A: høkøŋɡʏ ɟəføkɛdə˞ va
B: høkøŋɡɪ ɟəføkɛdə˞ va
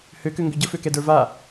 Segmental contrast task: A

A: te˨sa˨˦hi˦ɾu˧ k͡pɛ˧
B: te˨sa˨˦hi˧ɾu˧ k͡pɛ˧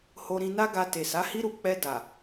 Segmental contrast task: A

